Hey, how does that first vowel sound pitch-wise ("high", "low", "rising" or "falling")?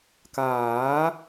rising